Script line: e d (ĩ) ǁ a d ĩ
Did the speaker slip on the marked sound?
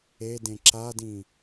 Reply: yes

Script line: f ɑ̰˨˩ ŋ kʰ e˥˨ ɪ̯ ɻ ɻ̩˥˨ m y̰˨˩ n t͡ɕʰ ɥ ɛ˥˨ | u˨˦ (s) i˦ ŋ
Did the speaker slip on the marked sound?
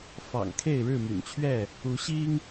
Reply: yes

